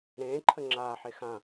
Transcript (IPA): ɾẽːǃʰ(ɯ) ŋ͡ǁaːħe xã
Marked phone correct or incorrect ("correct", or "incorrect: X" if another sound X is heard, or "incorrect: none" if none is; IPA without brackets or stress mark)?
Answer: incorrect: ə